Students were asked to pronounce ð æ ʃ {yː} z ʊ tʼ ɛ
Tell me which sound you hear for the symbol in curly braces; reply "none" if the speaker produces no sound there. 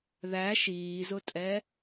iː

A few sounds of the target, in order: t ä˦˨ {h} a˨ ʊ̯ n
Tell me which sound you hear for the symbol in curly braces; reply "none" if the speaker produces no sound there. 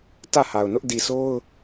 h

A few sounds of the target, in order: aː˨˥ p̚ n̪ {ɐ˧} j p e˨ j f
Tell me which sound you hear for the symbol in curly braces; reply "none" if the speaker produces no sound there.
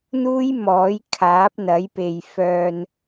ɐ˨˥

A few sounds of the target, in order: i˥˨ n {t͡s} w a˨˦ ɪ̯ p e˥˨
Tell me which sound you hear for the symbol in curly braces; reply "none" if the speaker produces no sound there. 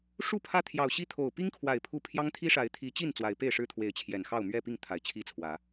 t͡s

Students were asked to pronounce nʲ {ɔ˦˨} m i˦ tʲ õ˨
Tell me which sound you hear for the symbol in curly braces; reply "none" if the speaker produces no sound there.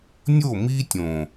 o˦˨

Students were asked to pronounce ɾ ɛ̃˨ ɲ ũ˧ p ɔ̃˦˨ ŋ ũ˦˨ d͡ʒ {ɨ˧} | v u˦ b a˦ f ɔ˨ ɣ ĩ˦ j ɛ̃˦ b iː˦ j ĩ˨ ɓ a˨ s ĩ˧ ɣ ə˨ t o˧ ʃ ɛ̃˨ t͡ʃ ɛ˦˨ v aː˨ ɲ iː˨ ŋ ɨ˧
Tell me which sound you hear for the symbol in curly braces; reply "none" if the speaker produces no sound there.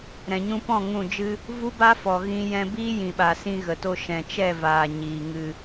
ɨ˦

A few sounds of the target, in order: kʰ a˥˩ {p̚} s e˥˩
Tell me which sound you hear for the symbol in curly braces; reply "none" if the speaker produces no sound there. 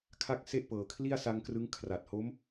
k̚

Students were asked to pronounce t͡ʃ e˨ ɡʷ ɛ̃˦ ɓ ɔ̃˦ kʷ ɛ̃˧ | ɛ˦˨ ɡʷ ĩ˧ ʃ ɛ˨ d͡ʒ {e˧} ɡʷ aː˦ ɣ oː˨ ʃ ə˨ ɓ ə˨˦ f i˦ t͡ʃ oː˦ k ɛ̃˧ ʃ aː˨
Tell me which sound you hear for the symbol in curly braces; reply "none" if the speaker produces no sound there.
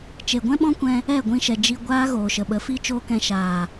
i˧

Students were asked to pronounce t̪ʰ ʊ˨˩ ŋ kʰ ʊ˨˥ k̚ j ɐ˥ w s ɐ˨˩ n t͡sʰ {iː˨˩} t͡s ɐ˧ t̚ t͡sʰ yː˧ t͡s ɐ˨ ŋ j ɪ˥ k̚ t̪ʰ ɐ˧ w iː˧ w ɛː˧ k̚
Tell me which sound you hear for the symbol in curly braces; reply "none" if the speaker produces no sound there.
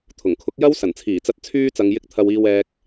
iː˨˩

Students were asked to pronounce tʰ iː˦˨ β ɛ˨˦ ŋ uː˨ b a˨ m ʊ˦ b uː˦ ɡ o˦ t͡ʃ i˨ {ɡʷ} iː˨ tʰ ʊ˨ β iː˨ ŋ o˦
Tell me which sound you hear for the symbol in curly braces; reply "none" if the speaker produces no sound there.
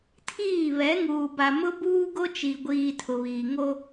ɡʷ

